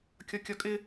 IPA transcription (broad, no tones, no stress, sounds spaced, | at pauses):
kʲ ɒ kʲ ɒ kʼ ɪ